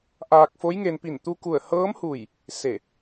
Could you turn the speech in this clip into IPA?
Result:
ʔ aː˧ k̚ f o˧˥ j ŋ e˧ n p i˧˩ n t̪ u˧ k u˧˩ ə̯ h ɤː˧˥ m h u˧˩ j | s e˧˩

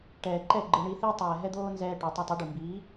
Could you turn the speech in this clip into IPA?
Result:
ʈ ɛː˨ ǃ ɛ˦˨ ɡ͡ǃ ɨ˨ ɳ i˧ θ i˦ tˤ ɛː˨ ɦ ɛ˦ d̪ oː˦ n z ɛː˦ ʈ o˨˦ tˤ ɛ˧ tˤ ɛ˨˦ ɖ u˨ m b iː˨˦

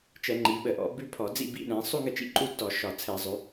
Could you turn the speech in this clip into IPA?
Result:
t͡ʃ ɛ˧˩˧ ŋ͡ǃ i˩˧ ɓ ə˧˩˧ ʔ ɔ̰˧˩˧ b ʉ˦˥ pʰ ɔ˧˩˧ d͡z ḭ˥˧ b ḭ˦˥ ɗ ɛ̃˩˧ sˤ u˥˧ ŋ ə˥˩ t͡ʃ ḭ˥˧ ǃʼ u˥˧ t ɔ˧˩˧ ʃ ɒ˧˩˧ t͡sʰ ɛ˧˩˧ zˤ ʉ˩˧

